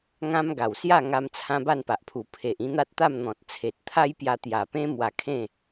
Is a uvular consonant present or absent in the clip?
absent